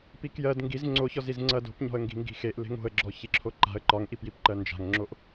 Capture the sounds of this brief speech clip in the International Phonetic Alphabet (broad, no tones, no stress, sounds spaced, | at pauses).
p i k j ɜ d ŋ ɡ i z ŋ͡ǀ o ç ɔ z i z ŋ͡ǀ ɐ d o̤ p ɲ ɔ̤ ə̯ ŋ ɡ i̤ ŋ ɡ i̤ x e ʔ l e̤ ŋ o̤ ə̯ ɡ͡ǁ ɔ ç i ǁʰ o ǃ a̤ ə̯ ǃ ɒ ŋ ʔ i p j i p ǃ ɜ n d͡ʒ a̤ ŋ ŋ͡ǁ o ʔ